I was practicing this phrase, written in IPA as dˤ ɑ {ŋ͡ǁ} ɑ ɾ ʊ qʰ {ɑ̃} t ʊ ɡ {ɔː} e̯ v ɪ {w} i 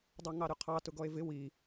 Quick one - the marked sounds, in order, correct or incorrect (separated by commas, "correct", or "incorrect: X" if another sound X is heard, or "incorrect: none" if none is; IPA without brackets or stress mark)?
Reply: incorrect: ŋ, incorrect: ɑ, incorrect: ɔ, correct